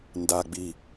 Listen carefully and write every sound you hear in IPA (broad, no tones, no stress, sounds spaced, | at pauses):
n d a ɡ͡b i